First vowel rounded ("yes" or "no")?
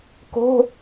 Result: yes